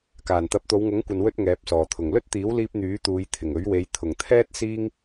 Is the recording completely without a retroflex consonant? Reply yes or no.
yes